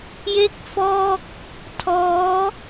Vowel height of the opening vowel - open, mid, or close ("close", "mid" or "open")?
mid